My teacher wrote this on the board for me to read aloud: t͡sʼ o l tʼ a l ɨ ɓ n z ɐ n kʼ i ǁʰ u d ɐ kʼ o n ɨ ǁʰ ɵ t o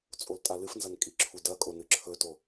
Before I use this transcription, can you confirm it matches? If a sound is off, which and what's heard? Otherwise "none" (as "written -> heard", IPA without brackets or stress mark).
ɓ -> f